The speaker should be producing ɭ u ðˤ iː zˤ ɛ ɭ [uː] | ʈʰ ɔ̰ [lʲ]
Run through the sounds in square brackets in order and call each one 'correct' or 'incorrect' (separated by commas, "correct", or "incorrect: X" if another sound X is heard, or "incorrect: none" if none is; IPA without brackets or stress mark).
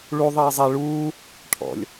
correct, correct